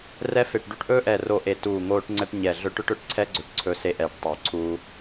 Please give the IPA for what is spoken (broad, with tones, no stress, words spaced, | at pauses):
rɛ˥fe˦˨ʈɖu˥ʈ ʔɵː˥ʔɛ˦˨ro˦˨ʔe˦˨ tuː˦˨ŋoː˥ʈ ŋ͡ǀɛ˥ʈɲɛ˦˨ɮɵ˥ ʈɵ˥ʈɵ˦˨ʈǀʰɛ˥ɡ͡ǀɵ˦˨ʈ ǀʰɵ˥ se˥ʔɛː˦˨ʈtˤɵː˦˨ǀʰuː˥